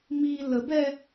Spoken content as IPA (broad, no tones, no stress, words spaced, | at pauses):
mi ləbɛ